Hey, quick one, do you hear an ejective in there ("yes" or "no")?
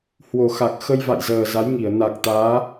no